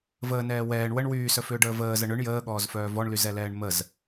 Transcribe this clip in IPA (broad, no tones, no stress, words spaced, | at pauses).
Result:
vəːnɛː wɛːɳ wəɳ wyːsœfʏːɖəː vəːzə ɳʏɳ jəːɠɔːzfœː vɔɳlyzɛlɛːɳ məz